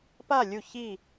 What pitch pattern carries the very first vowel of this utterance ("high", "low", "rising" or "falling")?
falling